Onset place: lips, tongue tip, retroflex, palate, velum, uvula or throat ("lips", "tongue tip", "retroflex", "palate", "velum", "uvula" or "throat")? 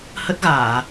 throat